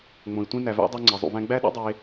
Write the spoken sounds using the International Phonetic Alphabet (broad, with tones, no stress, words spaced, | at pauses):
ŋ͡mõ˩i̯ tʷĩ˧ næ˩væ̰˧ dˤæ˧ŋ͡ǀe˩zˤṵ˩væ̃˧ ɡ͡bæ˥ ɗṵ˥dˤe˧